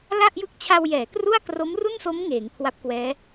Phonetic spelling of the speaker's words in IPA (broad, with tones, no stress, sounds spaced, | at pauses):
l a˥˩ ʔ j ɯ˦˥ k̚ t͡ɕʰ a˧ w j ɛː˩˦ k r u˥˩ a̯ k r o˦˥ m r u˥˩ n s o˦˥ m ŋ eː˩˦ ŋ kʰ w a˦˥ p̚ k w ɛː˦˥